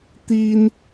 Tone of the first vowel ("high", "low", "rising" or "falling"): high